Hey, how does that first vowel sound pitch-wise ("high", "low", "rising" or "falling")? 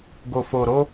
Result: low